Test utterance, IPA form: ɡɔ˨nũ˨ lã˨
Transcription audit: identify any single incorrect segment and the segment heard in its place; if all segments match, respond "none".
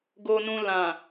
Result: ɔ˨ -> o˨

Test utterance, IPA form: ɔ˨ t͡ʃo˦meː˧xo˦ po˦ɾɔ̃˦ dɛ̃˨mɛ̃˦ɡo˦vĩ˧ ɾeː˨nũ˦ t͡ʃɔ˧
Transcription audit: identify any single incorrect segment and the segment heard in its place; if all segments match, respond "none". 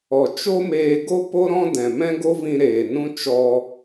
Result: x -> ɡ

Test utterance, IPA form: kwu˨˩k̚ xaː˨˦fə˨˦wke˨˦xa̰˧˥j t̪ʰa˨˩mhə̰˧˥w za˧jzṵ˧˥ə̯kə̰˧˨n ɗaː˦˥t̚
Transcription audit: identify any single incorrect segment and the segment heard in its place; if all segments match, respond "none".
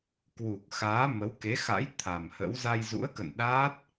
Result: f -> m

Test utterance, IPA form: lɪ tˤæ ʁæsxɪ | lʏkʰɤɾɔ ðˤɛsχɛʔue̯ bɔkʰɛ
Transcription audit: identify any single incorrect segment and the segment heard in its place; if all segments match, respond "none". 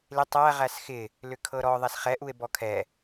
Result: none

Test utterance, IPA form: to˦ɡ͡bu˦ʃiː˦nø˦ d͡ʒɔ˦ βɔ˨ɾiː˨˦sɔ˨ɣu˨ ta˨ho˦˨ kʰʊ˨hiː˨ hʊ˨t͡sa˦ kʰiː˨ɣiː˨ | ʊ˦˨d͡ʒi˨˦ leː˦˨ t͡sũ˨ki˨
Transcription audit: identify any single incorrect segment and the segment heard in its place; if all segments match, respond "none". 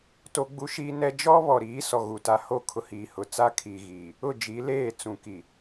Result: ø˦ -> ɛ˦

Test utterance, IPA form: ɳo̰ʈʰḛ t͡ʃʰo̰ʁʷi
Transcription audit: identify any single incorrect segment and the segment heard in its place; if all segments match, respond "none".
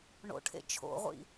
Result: i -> ḭ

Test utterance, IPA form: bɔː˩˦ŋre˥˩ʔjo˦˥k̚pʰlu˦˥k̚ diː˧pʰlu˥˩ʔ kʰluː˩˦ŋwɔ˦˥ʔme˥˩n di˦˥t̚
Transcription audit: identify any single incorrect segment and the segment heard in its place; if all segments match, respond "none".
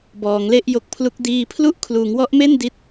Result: r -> l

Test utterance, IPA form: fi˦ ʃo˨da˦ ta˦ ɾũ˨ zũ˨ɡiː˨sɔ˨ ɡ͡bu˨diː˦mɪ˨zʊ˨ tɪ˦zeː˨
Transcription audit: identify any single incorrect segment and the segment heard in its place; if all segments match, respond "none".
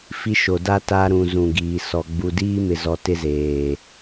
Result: ʊ˨ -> ɔ˨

